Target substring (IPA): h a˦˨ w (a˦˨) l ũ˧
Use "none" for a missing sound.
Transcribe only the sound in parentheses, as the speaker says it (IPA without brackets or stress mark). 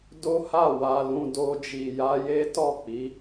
a˧